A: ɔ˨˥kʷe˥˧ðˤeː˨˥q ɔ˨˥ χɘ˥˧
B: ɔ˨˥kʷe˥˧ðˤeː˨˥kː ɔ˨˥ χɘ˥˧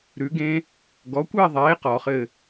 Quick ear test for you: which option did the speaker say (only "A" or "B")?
A